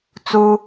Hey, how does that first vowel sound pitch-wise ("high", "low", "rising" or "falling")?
high